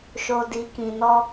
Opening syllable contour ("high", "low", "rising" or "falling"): low